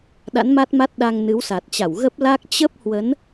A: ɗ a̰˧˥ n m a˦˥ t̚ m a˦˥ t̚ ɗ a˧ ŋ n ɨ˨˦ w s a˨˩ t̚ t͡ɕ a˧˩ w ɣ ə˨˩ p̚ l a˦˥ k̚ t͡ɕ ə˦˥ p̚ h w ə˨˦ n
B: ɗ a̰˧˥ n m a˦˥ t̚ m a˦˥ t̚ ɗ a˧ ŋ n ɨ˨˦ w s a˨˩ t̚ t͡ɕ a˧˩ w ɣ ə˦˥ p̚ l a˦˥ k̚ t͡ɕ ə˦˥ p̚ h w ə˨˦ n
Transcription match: B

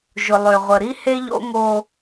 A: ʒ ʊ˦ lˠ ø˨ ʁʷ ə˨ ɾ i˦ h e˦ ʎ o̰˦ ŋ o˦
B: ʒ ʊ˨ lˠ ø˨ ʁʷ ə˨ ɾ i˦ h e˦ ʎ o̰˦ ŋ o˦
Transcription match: B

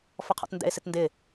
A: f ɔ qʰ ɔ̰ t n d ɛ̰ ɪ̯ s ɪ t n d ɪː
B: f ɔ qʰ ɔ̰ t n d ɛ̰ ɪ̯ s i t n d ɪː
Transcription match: A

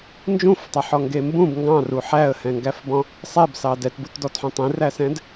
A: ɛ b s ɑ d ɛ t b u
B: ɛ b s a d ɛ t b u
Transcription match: A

